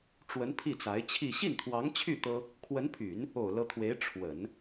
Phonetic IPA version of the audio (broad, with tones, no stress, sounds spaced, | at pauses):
ʈ͡ʂ w ə˧˥ n pʰ i˥˩ t͡s a˧˥ ɪ̯ t͡ɕʰ i˥˧ ɕ i˥˩ n t̪ʰ w ɑ˧˥ ŋ t͡ɕʰ y˥˩ t̪ ɤ˥ | kʰ w ə˧˥ n pʰ y˨˩˦ n | o˨˩ ʊ̯ l ɤ˧˥ t̪ʰ w e˧˥ ɪ̯ ʈ͡ʂʰ w ə˨˩˦ n